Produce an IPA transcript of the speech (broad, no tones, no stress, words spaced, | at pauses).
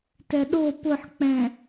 tɛɗo pʊħk͡pɛ̃